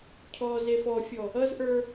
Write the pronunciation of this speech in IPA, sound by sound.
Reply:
cʰ ɔ z e f ɔ fʲ ɔ | ʌ z ʔ ə˞

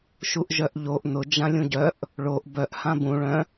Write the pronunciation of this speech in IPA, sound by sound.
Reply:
ʃ u ʔ ʒ œ ʔ ʎ o ʔ n ʊ d͡ʒ ã lʲ ũ ɟ œ ʔ | ɭ o ʔ b œ ʔ h ã b ũ ɭ œ̃

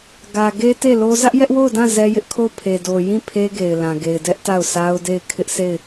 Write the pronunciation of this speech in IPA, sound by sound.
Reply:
ɡ ä˨ ɡ e˦ t e˦˨ l o˦ z ä˦ ʔ j ɛ˦ ʔ w o˦˨ ʊ̯ d ã˦˨ z ɛ˦ j ɪ˦ ʔ kʰ o˦˨ ʊ̯ pʰ e˨ d o˨ j ĩ˦˨ pʰ e˦ ɡ e˨ ɪ̯ l ã˨ ɡ e˨ ɪ̯ d ɛ˦ ʔ t a˦˨ ʊ̯ s a˦ ʊ̯ d e˦˨ ɪ̯ kʰ ɪ˦ ʔ s e˦˨ ɪ̯

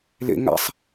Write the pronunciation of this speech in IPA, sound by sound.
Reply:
l ḛ ŋ a̰ sˤ

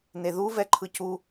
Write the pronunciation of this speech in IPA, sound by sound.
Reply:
n e ð u v ɛ ǃʰ ɯ c u

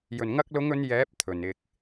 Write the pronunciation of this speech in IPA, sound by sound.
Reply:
j ɵ˨˩ n ŋ ɐ˧ k̚ l ʊ˨˧ ŋ ɵ˨˧ n j ɛː˨˥ p̚ t̪ʰ ɵ˨˩ n ɪ˨ k̚

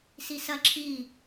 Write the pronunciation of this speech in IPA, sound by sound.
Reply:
s i s ɐ ǁʰ i

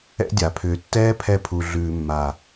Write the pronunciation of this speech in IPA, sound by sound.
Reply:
ɛ̰˦ dʲ a˨ pʰ ʏː˨ tː ɛː˦ pʰ ɛ˧ pʰ u˨ ɮ ʉː˨ mː a˨

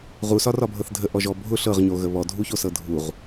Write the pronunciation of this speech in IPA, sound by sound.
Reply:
ʁ u s ɒ r ɒ bʱ ɤ θ dʱ ə ʔ ɔ ʒ ɔ bʱ ʊ ɬ ɤ ʁ ɲ o ɣ ə β ɔ dʱ u ç o s ɤ dʱ u ʁ

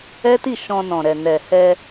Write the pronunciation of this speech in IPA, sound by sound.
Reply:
ɛ˦ t i˦˨ ʃ ɔ̃˧ n ɔ̃˨ ɾ ɛ˨ n ɛ˨ h ɛ˧

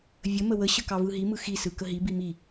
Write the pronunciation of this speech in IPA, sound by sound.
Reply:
vʲ ə m ə w ə ɕ ə k ɑ v ɯ ɦ i m ɯ x i s ɯ k ə ɦ i b i m i

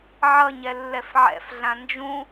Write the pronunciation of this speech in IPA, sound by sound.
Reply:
ʕ ʌ ɲ ɛ lː ɛ f ʕ ɛ̰ f ɮ ã n d͡ʒ ũ

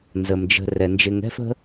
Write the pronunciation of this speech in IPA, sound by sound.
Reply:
n z ə˩ m d͡ʒ ə̤˨ r ɛ˩ n d͡ʒ ɪ˨ ŋ ɛ̤˥ f ə̤˥

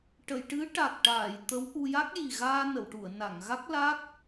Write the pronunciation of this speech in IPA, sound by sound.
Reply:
ʈ ə˨˩˨ j ʈ ɨ˧˥ ʈ a˨˩ k̚ ʈ aː˨˩˨ j t̪ ə˧˥ w ʔ u˧ j a˦˥ k̚ j i˨˩ ɣ aː˧ n ə˨˩˨ w ʈ u˨˩˨ ə̯ n a˨˩˨ ŋ ɣ a˦˥ k̚ l a˦˥ k̚

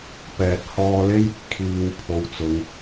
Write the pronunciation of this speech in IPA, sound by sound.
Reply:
p ɛː˨ t̚ h ɔː˧ l e˥ j | kʰ iː˨ w pʰ o˨ w t͡s ʊ˨˧ ŋ

